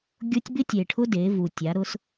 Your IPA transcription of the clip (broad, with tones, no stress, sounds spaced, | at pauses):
ɡʲ o˦ tʲ b ɪ˦ tʲ e˨ ʈʰ ʊ˦ d e˨˦ v u˨ tʲ a˨˦ ɾ ʊ˦ s